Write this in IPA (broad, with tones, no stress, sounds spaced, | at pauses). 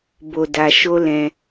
b o˧ d a˧ ʃ o˦ l ɛ̃˧